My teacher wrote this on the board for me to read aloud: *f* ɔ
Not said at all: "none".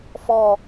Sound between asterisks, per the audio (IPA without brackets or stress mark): f